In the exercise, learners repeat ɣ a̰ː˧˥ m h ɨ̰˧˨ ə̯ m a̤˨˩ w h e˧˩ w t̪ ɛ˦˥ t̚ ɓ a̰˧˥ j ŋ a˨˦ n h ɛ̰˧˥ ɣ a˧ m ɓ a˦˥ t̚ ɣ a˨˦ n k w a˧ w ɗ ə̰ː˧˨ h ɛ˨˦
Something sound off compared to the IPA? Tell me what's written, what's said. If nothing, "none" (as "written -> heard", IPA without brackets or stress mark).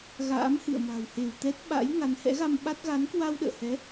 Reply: none